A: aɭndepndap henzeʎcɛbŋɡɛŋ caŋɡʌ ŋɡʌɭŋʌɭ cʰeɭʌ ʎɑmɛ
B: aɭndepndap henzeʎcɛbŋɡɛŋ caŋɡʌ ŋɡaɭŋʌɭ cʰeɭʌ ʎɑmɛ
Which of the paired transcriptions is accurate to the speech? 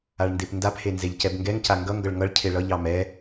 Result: A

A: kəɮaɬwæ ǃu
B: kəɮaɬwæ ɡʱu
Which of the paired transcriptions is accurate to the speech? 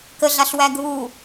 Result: B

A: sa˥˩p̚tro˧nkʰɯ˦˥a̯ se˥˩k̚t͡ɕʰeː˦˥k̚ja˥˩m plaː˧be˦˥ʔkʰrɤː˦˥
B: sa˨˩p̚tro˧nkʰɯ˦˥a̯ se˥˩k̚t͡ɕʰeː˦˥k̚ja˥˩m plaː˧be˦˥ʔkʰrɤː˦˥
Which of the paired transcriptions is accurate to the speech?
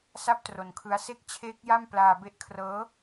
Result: A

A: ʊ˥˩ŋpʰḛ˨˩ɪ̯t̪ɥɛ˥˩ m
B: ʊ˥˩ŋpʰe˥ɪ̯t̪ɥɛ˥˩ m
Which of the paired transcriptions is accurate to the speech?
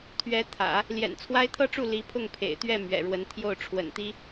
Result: A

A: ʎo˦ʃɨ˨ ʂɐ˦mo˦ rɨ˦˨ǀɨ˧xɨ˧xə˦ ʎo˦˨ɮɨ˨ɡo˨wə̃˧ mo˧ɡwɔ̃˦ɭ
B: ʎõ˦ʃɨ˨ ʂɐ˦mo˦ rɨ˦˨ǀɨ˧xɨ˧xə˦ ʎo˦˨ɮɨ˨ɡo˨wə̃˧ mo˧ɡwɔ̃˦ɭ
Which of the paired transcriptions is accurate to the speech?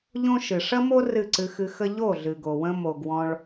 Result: B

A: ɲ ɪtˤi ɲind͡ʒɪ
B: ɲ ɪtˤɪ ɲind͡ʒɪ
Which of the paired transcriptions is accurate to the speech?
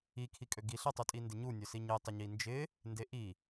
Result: B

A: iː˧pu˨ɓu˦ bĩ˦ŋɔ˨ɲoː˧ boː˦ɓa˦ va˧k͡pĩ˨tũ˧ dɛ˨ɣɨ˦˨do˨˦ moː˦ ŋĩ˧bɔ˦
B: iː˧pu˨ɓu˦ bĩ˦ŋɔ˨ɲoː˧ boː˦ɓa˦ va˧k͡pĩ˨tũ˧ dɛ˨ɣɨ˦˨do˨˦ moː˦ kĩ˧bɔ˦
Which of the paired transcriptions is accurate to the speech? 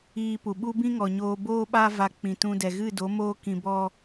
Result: B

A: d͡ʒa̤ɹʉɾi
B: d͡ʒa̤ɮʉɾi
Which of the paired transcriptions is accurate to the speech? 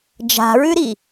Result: A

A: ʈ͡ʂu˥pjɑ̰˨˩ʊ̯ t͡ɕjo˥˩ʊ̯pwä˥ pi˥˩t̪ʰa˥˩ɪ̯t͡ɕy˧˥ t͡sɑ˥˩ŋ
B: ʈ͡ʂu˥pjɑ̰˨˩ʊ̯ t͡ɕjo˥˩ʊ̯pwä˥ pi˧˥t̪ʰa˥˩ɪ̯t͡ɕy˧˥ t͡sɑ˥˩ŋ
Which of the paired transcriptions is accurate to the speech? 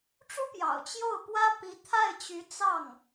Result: B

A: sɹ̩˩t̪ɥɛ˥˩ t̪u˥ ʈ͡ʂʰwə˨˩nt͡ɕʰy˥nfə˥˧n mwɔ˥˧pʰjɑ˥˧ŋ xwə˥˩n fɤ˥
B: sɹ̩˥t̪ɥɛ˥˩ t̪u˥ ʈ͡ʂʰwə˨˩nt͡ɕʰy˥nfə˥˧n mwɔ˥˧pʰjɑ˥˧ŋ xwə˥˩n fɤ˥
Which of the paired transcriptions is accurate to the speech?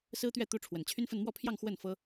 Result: B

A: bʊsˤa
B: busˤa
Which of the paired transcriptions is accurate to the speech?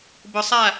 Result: A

